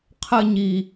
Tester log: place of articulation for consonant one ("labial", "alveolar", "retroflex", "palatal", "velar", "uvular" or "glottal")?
uvular